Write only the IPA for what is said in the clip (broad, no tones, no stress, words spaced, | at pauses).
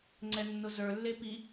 ŋ͡ǀɛnːʊzə˞lːe pi